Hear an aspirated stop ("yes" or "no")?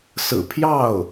yes